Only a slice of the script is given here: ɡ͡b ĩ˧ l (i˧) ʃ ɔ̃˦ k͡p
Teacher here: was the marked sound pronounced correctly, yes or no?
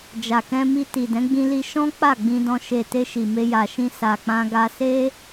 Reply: yes